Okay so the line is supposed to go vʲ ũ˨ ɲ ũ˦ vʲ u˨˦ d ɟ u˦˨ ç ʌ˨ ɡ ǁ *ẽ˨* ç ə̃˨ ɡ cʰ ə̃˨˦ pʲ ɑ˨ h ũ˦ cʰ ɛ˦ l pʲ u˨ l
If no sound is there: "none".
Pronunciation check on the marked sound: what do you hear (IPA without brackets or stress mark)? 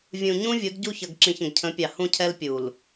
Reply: ĩ˨